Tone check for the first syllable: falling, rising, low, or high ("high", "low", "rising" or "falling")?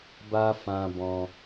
high